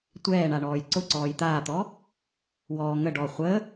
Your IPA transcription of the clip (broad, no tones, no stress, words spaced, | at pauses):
tʷɛːɳa ɳɔːjǀʊǀɔːj t̪aːt̪ɔ | wɔː ŋə ɖɔ χʷə